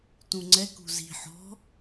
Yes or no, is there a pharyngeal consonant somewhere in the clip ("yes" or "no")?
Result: yes